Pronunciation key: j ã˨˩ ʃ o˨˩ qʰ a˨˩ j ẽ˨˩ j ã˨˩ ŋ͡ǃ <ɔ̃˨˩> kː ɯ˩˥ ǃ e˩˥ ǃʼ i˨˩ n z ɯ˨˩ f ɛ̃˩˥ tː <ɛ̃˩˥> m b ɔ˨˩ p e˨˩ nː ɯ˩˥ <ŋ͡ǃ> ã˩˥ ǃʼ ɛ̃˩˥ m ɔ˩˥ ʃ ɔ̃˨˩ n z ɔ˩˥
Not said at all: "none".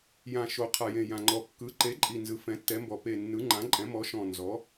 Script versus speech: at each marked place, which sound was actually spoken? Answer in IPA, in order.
ɔ˨˩, ɛ˩˥, ŋ͡ǃ

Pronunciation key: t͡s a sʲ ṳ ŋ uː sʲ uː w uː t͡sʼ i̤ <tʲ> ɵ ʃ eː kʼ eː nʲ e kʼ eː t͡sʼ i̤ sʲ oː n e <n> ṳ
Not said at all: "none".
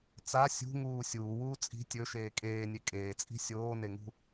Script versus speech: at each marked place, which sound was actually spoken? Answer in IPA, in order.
tʲ, ŋ

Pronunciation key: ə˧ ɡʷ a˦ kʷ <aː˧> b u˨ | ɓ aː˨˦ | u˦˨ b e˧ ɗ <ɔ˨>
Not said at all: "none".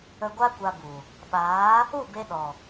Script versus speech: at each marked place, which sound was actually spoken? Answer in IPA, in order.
a˧, ɔ˨

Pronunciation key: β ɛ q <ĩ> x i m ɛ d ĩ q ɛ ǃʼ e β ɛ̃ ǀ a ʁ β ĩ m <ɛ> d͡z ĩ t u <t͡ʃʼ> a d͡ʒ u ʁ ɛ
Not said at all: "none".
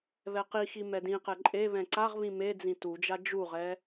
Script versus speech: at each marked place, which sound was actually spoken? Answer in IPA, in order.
i, e, d͡ʒ

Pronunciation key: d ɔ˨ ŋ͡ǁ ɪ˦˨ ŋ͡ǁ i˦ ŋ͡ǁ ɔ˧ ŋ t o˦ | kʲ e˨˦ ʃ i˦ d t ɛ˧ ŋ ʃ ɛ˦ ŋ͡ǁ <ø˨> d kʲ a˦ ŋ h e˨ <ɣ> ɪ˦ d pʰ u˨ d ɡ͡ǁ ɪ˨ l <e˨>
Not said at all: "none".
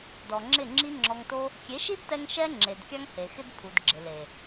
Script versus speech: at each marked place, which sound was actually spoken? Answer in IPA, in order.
e˨, x, e˨

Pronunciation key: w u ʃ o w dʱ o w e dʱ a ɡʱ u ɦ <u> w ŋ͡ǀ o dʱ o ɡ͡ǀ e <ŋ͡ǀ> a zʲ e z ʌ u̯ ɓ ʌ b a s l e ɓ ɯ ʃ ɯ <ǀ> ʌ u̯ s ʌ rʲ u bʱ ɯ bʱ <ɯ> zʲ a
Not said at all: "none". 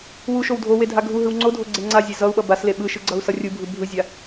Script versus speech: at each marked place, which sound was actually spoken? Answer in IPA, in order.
ɯ, ŋ͡ǀ, ɡ͡ǀ, ɯ

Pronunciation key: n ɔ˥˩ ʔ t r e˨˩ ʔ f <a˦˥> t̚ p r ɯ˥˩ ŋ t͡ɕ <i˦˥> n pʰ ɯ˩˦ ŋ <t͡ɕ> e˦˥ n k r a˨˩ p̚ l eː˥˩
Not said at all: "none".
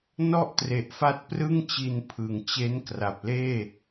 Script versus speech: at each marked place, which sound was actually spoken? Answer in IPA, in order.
a˦˥, i˧, t͡ɕ

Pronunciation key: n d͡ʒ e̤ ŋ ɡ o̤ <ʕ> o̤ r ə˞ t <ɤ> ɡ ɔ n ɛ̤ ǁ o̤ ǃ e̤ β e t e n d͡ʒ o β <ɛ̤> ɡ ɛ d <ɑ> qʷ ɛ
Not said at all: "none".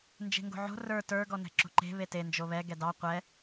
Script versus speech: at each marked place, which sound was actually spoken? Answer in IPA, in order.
ʕ, ə˞, ɛ, ɑ

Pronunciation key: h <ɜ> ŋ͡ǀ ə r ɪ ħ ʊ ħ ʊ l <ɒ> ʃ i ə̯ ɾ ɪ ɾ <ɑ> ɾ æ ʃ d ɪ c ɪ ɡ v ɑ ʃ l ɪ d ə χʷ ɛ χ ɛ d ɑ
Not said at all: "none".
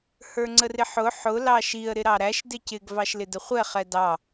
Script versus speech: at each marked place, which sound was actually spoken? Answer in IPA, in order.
ə˞, ɑ, ɑ

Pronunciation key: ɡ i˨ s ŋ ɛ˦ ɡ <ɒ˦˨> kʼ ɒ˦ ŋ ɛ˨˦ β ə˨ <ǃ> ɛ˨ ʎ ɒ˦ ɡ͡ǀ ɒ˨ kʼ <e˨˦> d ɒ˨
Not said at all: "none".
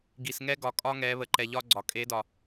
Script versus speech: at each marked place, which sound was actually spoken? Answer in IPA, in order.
ɒ˨, ǃ, e˨˦

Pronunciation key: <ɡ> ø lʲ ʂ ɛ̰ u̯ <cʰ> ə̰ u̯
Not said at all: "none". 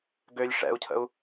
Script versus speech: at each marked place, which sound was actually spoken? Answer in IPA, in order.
ɡ, cʰ

